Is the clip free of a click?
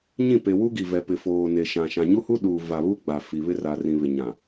yes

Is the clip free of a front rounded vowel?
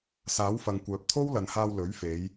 no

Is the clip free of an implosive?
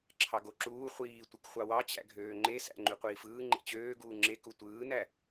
yes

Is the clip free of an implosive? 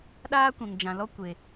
no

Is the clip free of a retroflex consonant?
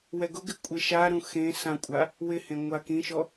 yes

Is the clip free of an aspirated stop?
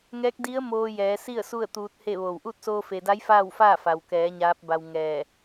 yes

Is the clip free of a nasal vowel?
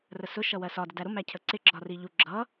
yes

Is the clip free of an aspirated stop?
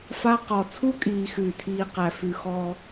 no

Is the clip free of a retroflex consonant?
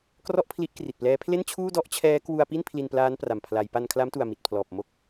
yes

